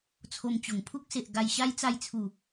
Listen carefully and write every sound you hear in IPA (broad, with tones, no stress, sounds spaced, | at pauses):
t͡sʰ o˧ m t͡ɕ o˨˩ ŋ pʰ u˦ k̚ s e˨ ʔ ɡ a˧ j ɕ a˦ j t͡s a˧ j t͡sʰ u˨˩